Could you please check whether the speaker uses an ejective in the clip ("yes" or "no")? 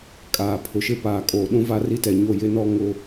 yes